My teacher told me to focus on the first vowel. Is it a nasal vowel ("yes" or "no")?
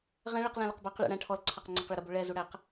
yes